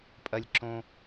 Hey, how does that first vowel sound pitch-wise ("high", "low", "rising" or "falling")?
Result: high